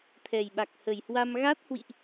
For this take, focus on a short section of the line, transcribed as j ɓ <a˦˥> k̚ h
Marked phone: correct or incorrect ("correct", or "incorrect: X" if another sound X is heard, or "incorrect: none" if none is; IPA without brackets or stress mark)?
incorrect: a˨˩